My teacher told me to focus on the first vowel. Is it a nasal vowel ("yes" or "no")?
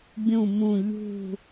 yes